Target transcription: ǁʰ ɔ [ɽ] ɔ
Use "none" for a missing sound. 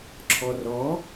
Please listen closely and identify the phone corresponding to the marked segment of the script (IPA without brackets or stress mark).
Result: r